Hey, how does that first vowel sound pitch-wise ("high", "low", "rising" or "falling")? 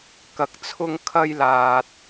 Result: low